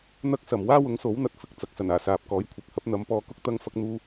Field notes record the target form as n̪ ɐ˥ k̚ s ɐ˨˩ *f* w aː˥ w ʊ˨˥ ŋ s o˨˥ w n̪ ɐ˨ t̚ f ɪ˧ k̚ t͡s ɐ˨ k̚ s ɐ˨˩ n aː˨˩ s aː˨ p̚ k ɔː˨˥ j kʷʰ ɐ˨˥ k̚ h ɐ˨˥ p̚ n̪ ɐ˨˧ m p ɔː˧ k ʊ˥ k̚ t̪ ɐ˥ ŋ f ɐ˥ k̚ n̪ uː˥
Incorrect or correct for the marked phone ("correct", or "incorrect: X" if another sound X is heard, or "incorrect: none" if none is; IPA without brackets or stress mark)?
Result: incorrect: m